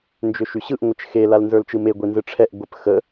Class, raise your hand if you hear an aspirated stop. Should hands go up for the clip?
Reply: yes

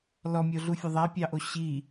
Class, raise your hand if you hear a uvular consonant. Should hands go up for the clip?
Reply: no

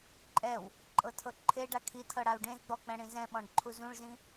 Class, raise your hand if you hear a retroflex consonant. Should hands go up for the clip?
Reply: yes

